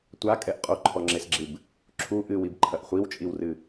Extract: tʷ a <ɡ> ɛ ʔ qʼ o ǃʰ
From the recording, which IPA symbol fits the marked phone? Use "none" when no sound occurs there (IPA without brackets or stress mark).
kʼ